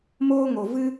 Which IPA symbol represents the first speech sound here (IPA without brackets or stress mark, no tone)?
m